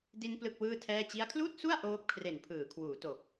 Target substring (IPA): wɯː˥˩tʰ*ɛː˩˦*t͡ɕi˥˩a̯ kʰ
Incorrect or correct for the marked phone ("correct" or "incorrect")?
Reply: incorrect